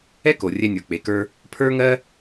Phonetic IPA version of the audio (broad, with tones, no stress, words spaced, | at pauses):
ɛ˥ko˩ rʲɛ˧nʲə˞˩k͡pe˩kə˞˧ | pʰə˞˥ŋɜ˥